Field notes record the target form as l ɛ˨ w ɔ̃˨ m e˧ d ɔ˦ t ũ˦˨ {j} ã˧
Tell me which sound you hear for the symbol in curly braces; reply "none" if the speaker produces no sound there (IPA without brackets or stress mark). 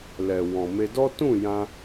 j